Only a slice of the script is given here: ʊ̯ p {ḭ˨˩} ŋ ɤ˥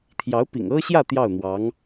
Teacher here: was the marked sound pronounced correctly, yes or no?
yes